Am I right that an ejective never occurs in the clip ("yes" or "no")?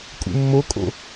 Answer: no